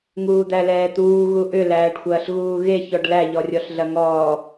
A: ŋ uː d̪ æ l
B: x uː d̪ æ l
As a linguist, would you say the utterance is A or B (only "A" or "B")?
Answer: A